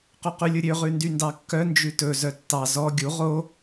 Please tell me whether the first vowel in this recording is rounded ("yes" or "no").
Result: yes